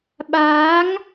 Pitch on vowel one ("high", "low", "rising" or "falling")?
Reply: rising